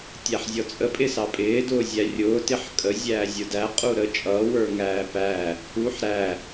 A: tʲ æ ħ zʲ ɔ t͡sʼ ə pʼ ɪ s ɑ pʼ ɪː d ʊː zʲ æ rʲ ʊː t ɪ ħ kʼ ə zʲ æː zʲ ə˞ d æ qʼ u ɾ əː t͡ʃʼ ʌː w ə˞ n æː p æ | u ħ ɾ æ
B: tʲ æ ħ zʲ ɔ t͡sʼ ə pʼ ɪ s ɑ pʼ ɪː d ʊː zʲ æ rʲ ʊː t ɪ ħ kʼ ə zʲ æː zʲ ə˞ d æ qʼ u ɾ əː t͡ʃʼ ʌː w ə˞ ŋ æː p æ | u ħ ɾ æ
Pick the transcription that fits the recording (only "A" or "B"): B